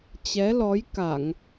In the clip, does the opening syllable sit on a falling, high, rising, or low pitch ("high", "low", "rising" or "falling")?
rising